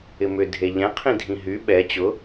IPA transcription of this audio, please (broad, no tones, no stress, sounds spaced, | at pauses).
ɪ m ʏ dʱ e ʎ ɛ̃ qʰ ĩ dʱ ĩ ɦ y ɓ ɛ t͡ɕ ʊ